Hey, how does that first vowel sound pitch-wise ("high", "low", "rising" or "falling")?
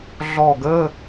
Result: falling